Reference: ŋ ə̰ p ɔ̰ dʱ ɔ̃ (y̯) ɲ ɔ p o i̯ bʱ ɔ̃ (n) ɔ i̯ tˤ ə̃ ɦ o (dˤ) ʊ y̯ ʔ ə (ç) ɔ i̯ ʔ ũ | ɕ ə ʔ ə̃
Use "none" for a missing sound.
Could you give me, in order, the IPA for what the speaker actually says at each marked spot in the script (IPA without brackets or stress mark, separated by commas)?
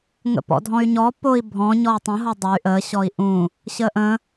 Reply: y̯, ɲ, dˤ, ɕ